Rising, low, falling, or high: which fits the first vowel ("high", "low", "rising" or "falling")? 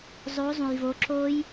rising